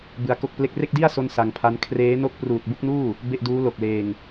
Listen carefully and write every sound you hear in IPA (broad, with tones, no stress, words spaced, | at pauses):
bɯ˧a̯ko˥˩k̚ple˥˩k̚ re˥˩k̚di˥˩a̯ so˥˩nsa˧ŋpʰa˦˥n kʰreː˦˥no˥˩k̚ pruː˨˩t̚bu˥˩k̚nuː˥˩ | be˥˩ʔduː˦˥ lo˨˩k̚leː˧ŋ